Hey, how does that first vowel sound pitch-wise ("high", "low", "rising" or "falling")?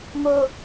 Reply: high